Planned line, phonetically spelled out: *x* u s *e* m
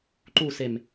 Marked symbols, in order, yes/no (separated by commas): no, yes